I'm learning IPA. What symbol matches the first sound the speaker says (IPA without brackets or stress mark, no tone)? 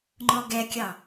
ŋ͡ǃ